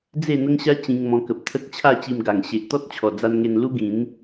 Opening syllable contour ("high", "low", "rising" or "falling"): falling